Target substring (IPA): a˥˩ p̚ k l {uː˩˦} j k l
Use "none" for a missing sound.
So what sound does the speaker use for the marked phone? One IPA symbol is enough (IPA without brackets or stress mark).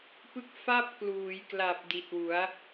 uː˩˦